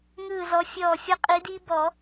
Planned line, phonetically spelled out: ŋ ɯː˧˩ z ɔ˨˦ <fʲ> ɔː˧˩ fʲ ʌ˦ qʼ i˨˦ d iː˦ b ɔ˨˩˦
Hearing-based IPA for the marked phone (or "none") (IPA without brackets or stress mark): fʲ